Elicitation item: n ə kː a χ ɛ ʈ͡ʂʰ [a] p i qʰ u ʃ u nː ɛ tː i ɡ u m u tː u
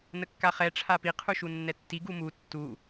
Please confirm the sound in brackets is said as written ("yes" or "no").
yes